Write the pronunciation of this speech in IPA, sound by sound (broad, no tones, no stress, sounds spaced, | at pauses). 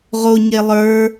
ʁ o ɲ e lˠ ə˞